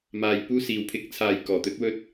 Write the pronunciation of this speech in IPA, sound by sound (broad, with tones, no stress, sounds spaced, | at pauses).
m aː˨ j p uː˧ s iː˨ w pʰ ɪ˨˥ k̚ t͡sʰ aː˧ j k ɔː˨˩ t̪ ɵ˥ t̚ w ɵ˥ t̚